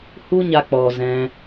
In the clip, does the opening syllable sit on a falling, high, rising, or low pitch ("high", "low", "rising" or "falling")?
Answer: high